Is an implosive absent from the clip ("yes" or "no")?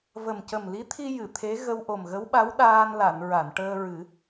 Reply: no